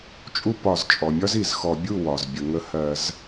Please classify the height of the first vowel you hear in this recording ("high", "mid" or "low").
high